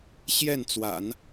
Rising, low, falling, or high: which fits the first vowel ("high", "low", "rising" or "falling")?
falling